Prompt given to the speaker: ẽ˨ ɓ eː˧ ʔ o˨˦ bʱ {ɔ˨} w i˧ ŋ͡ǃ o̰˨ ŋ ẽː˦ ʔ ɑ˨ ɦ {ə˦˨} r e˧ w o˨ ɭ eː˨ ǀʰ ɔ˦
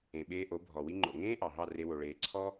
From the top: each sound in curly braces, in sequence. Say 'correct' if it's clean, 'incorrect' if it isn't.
correct, incorrect

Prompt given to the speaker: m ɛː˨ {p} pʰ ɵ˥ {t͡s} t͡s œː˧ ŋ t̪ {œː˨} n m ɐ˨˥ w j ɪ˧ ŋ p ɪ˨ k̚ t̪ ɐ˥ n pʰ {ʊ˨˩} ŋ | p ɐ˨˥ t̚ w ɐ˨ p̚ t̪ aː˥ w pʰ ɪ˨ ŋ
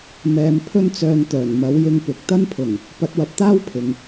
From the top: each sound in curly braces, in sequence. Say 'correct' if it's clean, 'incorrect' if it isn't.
incorrect, incorrect, incorrect, correct

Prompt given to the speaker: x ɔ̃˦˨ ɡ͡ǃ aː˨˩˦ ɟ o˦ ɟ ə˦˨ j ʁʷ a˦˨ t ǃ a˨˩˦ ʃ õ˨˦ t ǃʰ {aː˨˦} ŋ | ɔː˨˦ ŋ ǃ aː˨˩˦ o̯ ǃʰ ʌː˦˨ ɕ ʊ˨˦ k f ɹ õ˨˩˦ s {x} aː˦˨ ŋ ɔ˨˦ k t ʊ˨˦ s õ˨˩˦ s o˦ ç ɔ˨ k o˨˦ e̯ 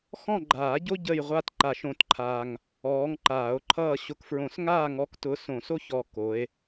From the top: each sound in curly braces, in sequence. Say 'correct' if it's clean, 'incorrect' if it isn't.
incorrect, incorrect

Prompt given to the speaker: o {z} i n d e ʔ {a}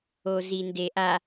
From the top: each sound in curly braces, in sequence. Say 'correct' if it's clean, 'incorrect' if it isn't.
correct, correct

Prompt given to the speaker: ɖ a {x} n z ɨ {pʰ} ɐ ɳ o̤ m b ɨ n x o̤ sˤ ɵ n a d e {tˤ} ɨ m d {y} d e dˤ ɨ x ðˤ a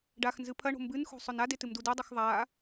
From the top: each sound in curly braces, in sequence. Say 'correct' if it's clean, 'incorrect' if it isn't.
correct, correct, incorrect, incorrect

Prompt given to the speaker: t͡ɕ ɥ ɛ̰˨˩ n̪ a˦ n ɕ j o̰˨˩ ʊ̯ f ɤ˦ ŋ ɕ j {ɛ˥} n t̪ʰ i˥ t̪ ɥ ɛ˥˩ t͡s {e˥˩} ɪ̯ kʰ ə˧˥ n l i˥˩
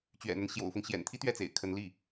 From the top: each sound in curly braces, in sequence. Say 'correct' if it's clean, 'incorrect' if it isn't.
incorrect, incorrect

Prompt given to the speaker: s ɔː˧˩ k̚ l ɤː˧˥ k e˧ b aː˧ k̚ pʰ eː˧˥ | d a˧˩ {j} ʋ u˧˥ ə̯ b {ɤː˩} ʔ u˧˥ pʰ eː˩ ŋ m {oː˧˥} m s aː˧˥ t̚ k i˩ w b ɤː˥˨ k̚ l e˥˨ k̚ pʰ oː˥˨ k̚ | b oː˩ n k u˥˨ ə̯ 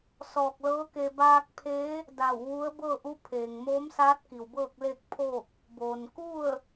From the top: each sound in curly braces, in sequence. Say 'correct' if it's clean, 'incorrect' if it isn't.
incorrect, incorrect, correct

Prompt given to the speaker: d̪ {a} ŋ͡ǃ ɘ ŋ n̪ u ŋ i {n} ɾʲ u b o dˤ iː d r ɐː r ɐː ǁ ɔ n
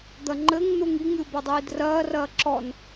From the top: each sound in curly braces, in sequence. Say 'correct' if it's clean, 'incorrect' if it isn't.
incorrect, incorrect

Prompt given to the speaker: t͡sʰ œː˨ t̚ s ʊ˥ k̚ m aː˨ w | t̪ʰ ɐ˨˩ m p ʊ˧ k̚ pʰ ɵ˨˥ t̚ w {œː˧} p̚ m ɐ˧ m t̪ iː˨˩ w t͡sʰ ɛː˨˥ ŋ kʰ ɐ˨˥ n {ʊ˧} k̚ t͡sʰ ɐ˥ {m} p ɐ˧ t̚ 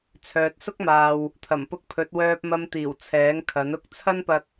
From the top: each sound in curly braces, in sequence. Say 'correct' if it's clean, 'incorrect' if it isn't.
correct, incorrect, incorrect

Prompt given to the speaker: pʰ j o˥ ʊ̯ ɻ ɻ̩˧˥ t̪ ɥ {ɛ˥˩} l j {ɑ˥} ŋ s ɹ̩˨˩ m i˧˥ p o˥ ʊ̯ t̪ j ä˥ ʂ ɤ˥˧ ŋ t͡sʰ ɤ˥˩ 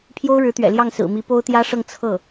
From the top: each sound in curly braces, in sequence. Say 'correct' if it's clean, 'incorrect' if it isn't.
incorrect, incorrect

